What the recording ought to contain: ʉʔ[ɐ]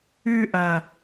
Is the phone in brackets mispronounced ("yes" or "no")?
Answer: no